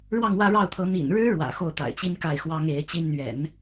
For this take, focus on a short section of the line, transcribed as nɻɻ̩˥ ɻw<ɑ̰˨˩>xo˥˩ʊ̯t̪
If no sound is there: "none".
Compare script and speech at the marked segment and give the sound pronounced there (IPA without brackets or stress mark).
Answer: ä̰˨˩